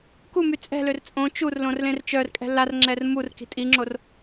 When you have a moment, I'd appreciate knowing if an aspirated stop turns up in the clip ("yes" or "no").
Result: no